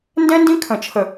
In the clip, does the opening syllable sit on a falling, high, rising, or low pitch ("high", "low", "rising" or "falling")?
high